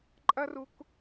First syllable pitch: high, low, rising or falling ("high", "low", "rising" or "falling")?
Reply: high